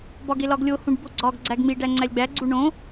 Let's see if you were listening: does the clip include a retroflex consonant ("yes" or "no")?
yes